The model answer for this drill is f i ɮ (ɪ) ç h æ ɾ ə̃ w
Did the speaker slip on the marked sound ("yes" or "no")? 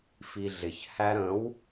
no